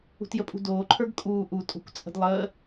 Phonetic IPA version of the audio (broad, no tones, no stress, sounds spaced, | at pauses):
ṳ t j ə pʼ ṳ d oː ǃʰ ə˞ ɡ kʼ uː ʔ u tʼ o̤ kʷ t͡sʼ ə̤ d lˠ əː